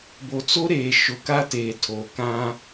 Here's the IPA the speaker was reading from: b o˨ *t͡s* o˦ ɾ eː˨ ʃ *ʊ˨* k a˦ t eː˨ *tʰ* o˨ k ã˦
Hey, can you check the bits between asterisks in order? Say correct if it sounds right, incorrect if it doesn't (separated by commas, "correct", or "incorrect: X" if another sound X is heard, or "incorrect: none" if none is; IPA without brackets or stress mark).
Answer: correct, correct, correct